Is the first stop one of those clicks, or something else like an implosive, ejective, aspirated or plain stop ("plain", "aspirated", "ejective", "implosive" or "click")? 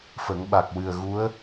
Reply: implosive